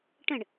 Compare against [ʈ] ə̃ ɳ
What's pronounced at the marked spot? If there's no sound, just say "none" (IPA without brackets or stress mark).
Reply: ʈ